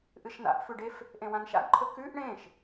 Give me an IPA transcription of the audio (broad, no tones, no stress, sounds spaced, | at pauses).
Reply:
ʔ ɨ ʃ n a̰ ʔ f ʉ ɖ e f | ʔ ẽ w ã n ʃ a̰ ɡ ǃʰ ɵ k ʉ ʔ ɳ ẽ ʃ